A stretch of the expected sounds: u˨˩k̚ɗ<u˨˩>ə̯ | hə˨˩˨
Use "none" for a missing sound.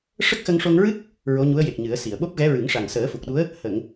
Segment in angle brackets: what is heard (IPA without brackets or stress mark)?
u˧˥